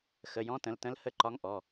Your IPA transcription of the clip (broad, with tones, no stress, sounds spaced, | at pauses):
x ə˩˧˩ j ɔ̃˧˥ t ə̃˩˧˩ l t ə̃˧˥ l h ə˦˨ ǃ ɒ˧˥ ŋ ʔ ɔ˩˧˩